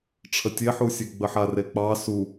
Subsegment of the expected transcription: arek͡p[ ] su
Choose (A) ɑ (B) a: A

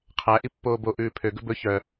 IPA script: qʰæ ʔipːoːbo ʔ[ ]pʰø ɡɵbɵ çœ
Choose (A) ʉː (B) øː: A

